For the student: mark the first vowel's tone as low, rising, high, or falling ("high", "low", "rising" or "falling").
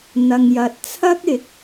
low